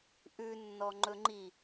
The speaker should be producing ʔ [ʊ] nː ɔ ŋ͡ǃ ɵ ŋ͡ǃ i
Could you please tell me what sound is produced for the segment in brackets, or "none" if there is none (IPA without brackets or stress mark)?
ʉ